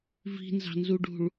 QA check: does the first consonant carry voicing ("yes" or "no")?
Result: yes